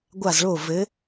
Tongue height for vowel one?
low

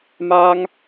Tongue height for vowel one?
low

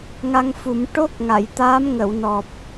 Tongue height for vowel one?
low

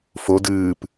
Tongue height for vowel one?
mid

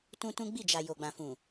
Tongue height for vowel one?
high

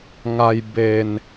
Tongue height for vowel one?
low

